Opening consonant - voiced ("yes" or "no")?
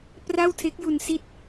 no